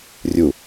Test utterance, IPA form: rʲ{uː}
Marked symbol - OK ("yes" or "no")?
no